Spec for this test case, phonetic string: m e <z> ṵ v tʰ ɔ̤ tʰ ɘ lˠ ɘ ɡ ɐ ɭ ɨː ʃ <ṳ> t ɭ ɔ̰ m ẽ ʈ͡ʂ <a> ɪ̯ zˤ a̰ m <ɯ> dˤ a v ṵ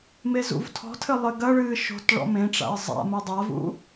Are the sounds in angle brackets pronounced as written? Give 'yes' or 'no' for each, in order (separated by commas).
yes, no, no, no